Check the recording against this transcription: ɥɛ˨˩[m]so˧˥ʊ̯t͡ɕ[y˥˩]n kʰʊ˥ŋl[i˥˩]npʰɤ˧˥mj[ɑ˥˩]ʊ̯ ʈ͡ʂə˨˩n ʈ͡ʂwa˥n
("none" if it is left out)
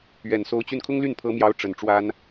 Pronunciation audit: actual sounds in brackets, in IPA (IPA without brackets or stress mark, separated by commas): n, y˥˩, y˥˩, ɑ˧˥